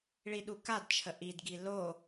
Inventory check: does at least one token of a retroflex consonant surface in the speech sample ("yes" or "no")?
yes